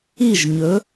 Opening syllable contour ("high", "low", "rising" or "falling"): falling